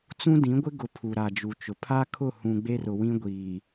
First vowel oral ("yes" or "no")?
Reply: no